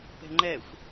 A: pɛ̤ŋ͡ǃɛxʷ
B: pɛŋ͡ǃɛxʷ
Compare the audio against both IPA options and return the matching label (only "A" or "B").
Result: A